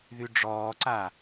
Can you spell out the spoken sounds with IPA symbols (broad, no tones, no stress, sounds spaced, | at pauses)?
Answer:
ð y ɖ͡ʐ ɔː ǀ a